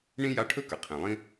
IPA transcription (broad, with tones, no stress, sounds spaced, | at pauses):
ɳ ĩ˥ j a˦ ʈʰ ɵ˥ k ə˩ qʰ ĩ˩ lˠ ĩ˥